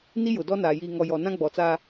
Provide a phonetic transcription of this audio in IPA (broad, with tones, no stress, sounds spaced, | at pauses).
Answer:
n i˦ j ʊ˨ d ɔ˦ n aː˨ j iː˨ ŋ ɔ˨ j ɔ˨ n ã˦ ɡ͡b ɔ˨ t͡s a˦